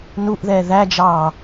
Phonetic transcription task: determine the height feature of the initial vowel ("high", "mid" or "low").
high